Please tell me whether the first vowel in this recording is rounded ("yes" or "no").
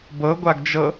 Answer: no